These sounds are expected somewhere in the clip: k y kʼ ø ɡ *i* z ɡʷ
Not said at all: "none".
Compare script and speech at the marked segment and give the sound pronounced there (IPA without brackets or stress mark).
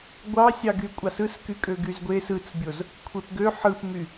y